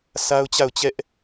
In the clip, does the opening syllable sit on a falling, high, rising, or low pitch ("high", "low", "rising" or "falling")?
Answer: high